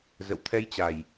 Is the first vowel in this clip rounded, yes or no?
no